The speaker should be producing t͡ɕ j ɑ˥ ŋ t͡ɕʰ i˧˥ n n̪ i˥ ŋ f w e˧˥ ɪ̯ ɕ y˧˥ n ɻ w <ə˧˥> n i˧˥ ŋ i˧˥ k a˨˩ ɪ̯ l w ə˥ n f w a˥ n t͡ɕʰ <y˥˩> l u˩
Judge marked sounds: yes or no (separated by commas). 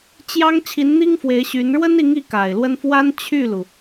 no, yes